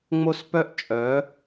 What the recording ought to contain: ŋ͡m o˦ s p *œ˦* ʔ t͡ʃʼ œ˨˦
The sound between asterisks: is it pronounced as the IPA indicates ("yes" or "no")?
yes